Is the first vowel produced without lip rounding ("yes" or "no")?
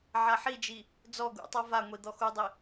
yes